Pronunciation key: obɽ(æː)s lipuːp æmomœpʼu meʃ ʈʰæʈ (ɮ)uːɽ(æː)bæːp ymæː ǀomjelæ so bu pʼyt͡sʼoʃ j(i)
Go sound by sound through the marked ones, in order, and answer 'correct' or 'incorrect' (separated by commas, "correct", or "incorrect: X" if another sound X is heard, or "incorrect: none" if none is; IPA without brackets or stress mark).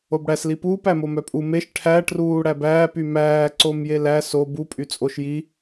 incorrect: æ, incorrect: r, incorrect: æ, correct